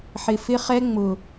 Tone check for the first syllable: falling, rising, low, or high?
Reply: low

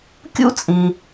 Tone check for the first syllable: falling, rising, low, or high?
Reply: high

